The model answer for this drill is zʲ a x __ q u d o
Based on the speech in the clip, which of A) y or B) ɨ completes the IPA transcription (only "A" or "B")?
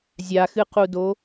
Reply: B